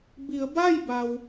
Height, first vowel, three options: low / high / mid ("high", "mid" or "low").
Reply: high